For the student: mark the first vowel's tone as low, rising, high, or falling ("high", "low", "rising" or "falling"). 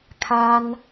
high